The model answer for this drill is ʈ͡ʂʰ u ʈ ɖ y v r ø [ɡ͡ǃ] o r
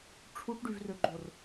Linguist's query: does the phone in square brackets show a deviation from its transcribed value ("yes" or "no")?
no